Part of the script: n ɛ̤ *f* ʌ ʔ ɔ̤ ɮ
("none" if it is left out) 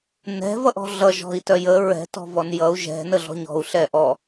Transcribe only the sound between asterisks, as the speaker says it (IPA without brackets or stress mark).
v